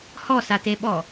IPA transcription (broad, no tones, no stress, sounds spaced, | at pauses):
h ɔ s a t e ɓ ɔ